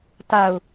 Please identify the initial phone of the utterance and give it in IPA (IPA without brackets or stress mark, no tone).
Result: t